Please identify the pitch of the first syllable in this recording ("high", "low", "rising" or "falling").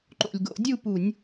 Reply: low